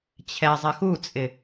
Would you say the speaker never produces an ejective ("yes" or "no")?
no